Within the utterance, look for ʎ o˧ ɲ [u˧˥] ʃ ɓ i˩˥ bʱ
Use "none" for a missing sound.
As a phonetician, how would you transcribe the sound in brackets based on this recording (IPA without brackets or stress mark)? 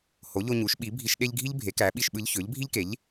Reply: u˩˥